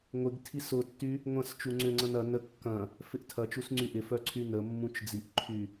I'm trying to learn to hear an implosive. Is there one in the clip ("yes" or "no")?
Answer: no